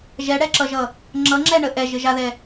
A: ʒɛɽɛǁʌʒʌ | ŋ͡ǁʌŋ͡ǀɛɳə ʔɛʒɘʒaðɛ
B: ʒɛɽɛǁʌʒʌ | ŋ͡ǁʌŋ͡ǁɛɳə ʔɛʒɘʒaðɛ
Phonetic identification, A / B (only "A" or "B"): B